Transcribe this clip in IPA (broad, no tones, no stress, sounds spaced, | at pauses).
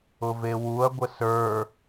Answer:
ʊ v e w u ɐ̯ ɡʷ ə s ə˞